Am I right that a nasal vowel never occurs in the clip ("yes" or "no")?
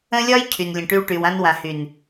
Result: no